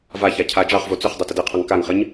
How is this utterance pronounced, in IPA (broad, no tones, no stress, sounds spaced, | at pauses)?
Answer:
v a ç a cʰ a d͡ʒ ɑ χ v o t͡s ʏ χ dˤ o t ə d ɨ qʰ ɑ ŋ k a ŋ χ ə ɲ